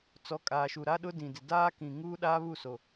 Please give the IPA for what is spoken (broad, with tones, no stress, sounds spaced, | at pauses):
t͡s ɔ˨˦ kʼ aː˨ ʃ u˨ ɾ a˦ ɗ ʊ˦ d ĩ˨ d ɪ˨ d aː˦ k ĩ˨ ŋ uː˦ ɗ aː˦ β u˦˨ s o˨